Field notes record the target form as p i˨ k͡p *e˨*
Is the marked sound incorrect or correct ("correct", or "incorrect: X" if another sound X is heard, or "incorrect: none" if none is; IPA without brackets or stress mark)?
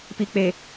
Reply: correct